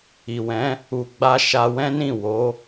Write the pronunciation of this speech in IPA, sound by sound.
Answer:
i˨ w ɛ̃˨˦ | u˧ ɡ͡b a˦ ʃ a˧ w ɛ̃˦ n ĩ˦˨ w o˨˦

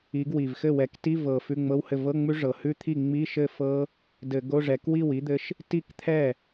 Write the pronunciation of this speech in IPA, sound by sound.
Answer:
i˨˦ ɡ w i˨˩ v x ɘ˥˩ w ɛ˨˩ k t i˧˥˧ v ɤ˨˩ f ʉ˧˥˧ ŋ͡m ɤ˧˥˧ w h ɘ˥˩ v ɤ˧˥˧ ŋ͡m ʉ˦˥ ʐ ɤ˨˩ h ʉ˦˥ t̪ʰ i˥˩ ŋ͡m i˧˥˧ ʃ ɘ˥˩ f ɤ˦˥ | d ɘ˧˩˧ ɡ o˧˥˧ ʐ ɛ˨˦ k w i˥˩ w i˦˥ d̪ ɘ˦˥ ʃ | t i˥˩ k t̪ʰ ɛ˥˩

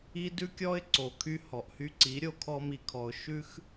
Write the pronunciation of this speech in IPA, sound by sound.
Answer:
i˦ d ʉ˦ kʲ ɔ˦ ɪ̯ ǀ o˨ kʰ y˧ h ɔ˨ ʔ h y˧ ǀ i˨˦ ɾʲ o˧ kʰ ɔ˧ m i˨ kʰ ɔ˨ ʊ̯ ʃ ʉ˦ x

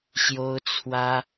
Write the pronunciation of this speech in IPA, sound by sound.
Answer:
ɕ j o˥ ʊ̯ t͡sʰ w ä˥

